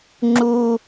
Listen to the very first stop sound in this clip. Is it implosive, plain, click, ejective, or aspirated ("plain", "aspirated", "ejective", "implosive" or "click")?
click